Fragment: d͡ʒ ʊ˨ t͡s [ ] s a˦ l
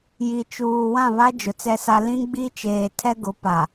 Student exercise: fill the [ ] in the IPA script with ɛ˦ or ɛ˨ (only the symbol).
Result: ɛ˦